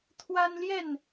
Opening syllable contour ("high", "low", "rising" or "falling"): high